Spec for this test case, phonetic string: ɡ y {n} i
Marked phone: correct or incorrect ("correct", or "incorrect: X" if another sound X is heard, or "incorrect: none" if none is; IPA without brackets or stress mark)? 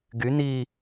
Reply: correct